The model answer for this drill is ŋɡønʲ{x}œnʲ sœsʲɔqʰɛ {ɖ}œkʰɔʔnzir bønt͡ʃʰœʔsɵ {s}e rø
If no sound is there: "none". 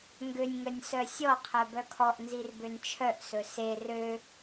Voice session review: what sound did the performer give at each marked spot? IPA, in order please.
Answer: ŋ, b, s

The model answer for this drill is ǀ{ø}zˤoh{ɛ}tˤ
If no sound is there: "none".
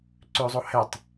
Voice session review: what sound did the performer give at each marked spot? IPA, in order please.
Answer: ø, ɛ

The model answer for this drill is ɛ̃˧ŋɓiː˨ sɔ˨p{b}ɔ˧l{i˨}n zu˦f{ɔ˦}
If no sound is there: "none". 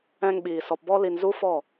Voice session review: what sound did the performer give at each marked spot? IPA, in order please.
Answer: b, i˨, ɔ˦˨

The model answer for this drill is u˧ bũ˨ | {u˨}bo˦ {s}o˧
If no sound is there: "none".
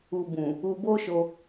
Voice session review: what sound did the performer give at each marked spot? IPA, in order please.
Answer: u˧, ʃ

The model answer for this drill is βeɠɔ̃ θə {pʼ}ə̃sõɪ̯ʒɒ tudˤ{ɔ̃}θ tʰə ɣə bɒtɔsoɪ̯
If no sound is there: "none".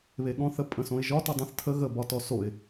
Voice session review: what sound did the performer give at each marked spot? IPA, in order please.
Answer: pʼ, ə̃

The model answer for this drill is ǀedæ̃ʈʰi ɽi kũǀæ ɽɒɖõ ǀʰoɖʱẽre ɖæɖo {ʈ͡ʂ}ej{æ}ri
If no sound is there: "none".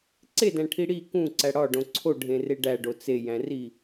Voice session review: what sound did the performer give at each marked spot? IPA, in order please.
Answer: t͡s, æ̃

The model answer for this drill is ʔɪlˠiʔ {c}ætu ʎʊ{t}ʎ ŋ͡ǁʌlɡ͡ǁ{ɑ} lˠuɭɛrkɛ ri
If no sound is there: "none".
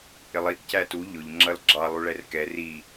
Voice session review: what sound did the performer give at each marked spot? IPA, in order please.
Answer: c, none, ɑ

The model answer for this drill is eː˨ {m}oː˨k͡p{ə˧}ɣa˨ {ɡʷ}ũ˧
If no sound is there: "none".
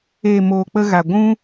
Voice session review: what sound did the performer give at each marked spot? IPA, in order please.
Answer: m, ə˧, ɡʷ

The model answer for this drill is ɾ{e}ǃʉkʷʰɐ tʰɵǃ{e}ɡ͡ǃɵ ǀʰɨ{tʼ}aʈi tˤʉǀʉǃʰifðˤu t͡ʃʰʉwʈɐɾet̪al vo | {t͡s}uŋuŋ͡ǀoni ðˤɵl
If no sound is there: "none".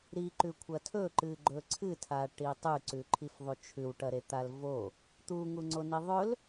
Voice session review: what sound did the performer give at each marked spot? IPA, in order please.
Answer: i, ɨ, tʰ, t̪

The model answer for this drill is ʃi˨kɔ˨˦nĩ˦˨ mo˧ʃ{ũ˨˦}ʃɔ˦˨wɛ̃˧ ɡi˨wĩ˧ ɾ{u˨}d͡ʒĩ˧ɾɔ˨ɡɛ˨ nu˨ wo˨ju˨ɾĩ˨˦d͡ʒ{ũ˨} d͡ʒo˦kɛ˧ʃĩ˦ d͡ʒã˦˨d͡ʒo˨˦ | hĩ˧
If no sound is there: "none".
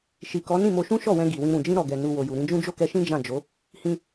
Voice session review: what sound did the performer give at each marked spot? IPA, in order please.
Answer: ũ˦, ũ˨, ũ˦

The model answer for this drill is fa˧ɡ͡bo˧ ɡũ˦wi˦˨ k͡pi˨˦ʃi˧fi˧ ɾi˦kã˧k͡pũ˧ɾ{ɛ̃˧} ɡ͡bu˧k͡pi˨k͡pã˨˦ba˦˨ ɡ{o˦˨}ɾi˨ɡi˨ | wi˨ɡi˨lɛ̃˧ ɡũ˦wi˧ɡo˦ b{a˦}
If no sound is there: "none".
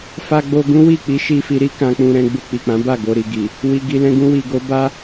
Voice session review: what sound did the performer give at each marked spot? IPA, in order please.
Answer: ɛ̃˧, o˧, a˦

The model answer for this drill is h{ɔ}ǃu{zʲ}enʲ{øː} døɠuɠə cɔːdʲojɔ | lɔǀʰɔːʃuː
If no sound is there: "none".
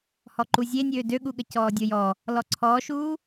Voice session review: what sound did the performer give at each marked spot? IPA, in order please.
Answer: ɔ, zʲ, øː

